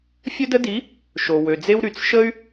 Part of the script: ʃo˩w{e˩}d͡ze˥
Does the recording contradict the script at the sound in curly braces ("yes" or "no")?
yes